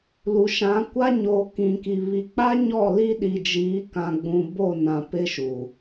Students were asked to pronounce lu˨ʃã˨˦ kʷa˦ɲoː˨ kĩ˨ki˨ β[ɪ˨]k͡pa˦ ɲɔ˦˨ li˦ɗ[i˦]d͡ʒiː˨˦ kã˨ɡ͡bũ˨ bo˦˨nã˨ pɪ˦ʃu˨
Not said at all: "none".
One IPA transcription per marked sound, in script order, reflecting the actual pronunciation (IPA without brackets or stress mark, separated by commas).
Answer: i˨, i˨